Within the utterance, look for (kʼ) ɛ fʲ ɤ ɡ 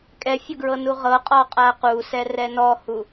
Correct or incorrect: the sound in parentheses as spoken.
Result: correct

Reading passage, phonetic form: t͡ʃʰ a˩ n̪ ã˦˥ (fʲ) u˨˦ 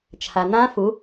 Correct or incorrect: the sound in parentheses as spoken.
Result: incorrect: f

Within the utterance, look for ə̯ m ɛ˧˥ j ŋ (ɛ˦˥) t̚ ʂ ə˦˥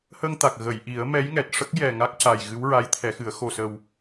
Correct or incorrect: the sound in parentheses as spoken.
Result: incorrect: ɛ˨˩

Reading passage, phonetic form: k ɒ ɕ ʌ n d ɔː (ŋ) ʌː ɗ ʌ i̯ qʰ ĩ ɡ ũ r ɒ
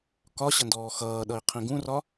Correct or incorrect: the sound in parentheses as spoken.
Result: incorrect: x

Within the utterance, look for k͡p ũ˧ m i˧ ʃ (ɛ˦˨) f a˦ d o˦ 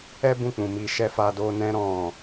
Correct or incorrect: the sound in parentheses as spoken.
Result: incorrect: ɛ˦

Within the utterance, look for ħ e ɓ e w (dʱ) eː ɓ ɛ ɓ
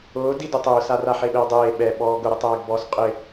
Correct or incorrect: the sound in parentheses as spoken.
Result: incorrect: dˤ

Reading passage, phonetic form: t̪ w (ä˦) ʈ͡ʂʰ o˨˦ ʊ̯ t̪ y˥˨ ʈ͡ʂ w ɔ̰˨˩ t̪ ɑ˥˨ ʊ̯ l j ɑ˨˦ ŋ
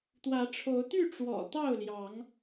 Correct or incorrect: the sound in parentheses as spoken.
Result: incorrect: ä˨˦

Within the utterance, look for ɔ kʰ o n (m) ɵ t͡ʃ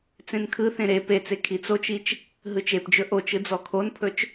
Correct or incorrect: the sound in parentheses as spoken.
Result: incorrect: pʰ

